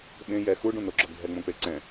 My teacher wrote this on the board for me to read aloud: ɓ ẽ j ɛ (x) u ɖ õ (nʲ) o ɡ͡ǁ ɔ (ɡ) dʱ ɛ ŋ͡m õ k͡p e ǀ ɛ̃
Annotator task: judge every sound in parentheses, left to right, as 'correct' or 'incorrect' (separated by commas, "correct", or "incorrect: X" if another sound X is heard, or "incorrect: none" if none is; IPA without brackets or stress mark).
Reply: correct, incorrect: n, correct